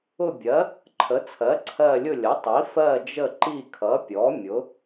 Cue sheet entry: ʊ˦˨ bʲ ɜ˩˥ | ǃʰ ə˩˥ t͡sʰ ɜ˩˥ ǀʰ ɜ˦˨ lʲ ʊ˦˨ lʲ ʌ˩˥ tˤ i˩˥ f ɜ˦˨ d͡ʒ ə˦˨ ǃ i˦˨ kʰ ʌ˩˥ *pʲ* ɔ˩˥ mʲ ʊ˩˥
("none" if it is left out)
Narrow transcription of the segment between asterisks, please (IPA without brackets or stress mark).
pʲ